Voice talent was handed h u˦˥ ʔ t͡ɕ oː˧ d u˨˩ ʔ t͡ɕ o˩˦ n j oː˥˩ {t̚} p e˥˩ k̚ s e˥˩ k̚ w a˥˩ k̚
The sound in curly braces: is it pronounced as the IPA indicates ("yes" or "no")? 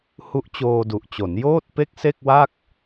yes